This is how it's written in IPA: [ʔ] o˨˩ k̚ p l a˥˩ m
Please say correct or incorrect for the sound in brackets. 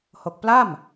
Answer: incorrect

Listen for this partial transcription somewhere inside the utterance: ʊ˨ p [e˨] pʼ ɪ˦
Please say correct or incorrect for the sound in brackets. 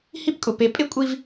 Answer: correct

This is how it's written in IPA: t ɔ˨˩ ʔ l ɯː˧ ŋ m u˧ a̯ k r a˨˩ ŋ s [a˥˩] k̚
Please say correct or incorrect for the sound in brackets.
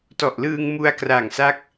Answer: incorrect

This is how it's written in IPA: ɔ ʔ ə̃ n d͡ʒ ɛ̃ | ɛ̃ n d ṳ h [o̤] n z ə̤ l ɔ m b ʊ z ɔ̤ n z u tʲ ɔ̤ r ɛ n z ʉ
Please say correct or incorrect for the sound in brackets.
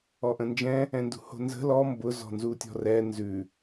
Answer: correct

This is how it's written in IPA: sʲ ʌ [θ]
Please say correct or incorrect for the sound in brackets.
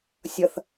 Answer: correct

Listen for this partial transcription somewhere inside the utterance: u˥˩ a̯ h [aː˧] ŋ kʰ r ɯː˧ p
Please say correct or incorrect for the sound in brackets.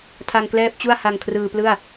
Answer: incorrect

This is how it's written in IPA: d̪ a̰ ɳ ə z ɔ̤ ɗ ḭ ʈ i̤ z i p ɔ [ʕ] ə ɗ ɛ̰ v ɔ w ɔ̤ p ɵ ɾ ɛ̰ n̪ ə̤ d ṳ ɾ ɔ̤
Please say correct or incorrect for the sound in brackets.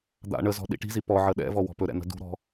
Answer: correct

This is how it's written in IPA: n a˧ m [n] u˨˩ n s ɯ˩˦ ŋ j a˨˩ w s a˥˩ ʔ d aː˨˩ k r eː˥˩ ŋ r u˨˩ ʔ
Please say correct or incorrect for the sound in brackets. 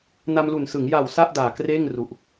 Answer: incorrect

